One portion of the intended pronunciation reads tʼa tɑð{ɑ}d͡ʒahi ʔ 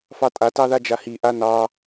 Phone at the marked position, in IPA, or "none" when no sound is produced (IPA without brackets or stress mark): a